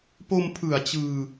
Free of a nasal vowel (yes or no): yes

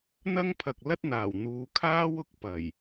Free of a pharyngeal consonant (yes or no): yes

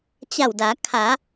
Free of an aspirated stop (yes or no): no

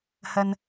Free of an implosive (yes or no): yes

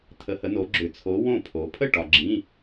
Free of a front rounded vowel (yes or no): no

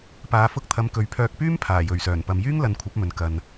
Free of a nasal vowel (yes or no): yes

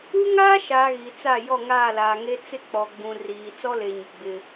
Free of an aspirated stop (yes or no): yes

